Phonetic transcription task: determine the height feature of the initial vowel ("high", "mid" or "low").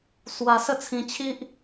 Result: low